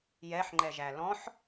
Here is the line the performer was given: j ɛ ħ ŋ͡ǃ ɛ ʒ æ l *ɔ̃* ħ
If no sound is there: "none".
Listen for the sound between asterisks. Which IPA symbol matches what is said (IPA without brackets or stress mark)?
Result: ɔ̃